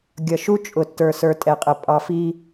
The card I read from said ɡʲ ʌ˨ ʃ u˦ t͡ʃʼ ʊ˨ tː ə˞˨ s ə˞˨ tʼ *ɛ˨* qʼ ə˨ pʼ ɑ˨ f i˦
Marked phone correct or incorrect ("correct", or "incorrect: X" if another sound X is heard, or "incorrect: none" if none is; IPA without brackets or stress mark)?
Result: correct